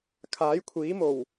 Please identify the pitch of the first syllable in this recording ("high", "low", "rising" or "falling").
rising